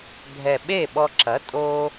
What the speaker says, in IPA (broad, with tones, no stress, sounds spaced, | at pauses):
bʱ ɛ˨˩ ɓ eː˥˩ ɓ ɔ˧ ǁ ɐ˩˥ tʼ o˧